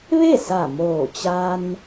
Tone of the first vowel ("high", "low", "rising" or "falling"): falling